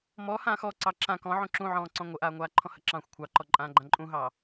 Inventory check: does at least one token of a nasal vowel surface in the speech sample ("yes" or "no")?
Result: yes